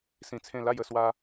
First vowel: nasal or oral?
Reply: nasal